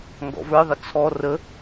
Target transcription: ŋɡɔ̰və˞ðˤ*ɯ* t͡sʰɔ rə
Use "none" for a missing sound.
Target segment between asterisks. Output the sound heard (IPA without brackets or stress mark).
ə